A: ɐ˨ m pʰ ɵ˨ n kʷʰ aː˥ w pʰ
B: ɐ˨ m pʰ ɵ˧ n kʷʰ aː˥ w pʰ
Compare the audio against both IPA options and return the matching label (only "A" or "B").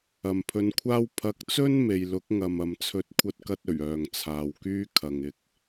B